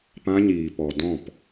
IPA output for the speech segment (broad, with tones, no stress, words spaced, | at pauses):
pã˧ɲiː˨ pɔ˨ dɔ̃˦˨p